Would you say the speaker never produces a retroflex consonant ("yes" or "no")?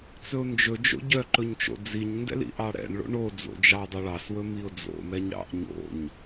no